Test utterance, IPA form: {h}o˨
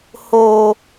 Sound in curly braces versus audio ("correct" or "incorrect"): correct